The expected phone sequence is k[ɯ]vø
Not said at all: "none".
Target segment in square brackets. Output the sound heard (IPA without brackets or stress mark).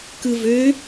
ɯ